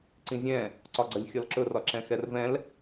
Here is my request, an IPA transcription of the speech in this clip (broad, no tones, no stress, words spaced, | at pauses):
ǀĩzʲɛ̃ | ǀɒɡ͡ǀʌlʲxʲɒlǁɵ rɒǁɛ̃xɛrvɛ̃l